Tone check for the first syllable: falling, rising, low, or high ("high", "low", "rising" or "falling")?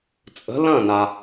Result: rising